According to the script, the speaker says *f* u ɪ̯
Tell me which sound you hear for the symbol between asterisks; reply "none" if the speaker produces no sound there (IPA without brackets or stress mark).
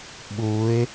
ɓ